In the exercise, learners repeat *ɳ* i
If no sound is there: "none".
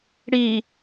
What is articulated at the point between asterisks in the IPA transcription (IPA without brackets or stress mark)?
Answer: ɽ